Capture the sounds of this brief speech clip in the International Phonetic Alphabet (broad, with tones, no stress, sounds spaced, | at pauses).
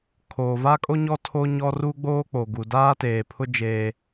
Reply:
kʰ oː˨ v a˦ kʼ o˦ ɲ ɔ˦ tʰ o˦ ɲ ɔ˦ r u˦ ɡ͡b oː˦ k͡p o˨ ɡ u˨ d aː˦ t eː˨ pʰ ʊ˦ d͡ʒ eː˦